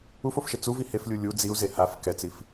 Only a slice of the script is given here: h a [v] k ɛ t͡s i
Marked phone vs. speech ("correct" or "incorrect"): incorrect